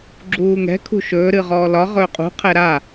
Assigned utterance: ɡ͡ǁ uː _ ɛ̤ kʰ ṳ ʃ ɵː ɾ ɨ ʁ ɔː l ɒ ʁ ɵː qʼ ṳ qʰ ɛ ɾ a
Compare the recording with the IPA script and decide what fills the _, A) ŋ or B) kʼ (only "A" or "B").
A